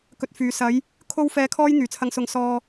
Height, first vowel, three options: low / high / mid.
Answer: mid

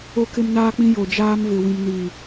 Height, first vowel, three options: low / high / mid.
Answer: mid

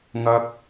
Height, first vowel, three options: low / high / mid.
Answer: low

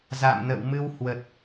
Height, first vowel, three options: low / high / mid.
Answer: low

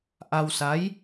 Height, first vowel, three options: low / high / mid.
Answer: low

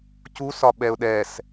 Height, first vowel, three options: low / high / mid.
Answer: high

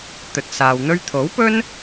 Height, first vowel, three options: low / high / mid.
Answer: mid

